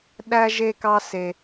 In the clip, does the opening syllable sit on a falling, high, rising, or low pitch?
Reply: high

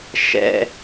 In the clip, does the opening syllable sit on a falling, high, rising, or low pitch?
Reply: high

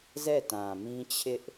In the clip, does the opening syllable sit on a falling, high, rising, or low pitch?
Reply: falling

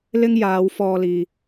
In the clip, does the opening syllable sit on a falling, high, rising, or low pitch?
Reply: high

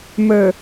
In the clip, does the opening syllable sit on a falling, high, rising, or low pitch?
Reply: low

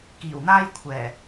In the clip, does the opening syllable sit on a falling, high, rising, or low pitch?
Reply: low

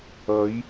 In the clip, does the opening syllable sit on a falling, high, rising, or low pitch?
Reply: rising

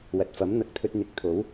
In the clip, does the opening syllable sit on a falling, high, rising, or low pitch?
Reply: low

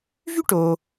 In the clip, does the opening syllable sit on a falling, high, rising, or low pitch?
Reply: high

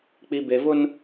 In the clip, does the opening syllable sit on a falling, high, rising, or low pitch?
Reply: low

